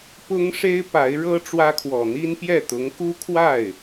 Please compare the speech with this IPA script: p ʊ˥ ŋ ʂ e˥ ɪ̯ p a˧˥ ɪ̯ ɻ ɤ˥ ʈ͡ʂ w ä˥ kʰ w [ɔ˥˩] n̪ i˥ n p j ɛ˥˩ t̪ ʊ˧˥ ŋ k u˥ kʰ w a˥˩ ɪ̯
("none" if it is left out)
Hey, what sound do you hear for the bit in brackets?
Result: ɔ˨˩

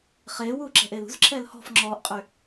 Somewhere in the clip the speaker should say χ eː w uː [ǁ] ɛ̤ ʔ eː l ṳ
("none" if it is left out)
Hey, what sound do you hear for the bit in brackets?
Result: ǁ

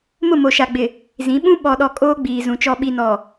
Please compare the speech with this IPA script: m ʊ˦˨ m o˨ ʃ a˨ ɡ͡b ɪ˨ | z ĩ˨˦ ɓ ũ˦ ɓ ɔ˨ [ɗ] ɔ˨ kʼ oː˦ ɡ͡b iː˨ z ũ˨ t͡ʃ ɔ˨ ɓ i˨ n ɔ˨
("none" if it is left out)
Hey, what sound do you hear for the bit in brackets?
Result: ɗ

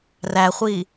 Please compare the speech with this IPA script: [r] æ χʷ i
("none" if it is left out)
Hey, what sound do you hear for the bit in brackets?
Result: r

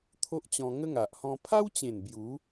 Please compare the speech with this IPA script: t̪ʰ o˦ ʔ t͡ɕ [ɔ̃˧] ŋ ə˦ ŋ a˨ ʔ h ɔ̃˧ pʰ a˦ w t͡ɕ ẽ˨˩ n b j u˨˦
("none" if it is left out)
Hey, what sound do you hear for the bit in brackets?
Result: ɔ̃˧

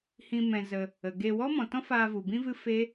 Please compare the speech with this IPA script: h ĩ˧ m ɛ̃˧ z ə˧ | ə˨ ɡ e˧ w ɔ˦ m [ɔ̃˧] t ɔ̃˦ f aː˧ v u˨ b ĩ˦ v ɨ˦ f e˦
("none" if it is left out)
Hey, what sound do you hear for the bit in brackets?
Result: ɔ̃˨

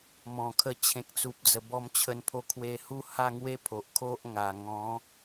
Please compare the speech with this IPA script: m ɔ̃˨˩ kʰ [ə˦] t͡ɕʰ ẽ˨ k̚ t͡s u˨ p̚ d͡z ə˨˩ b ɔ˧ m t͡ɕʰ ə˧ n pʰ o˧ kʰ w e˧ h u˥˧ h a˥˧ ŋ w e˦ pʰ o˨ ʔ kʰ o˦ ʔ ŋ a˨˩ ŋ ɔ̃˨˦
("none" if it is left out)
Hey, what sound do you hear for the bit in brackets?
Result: ə˧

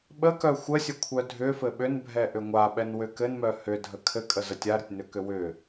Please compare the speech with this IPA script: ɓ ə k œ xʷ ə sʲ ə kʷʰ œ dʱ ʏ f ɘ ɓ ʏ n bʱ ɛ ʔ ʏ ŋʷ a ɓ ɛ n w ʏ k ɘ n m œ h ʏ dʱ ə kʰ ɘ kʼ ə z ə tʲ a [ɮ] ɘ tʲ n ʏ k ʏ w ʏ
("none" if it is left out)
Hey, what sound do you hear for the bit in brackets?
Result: ɾ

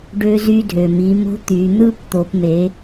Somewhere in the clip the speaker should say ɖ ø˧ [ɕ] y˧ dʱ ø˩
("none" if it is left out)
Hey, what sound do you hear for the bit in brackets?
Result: z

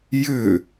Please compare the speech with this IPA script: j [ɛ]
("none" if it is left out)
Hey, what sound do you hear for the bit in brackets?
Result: ʏ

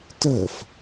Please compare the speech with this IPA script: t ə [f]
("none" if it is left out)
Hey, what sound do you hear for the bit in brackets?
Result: f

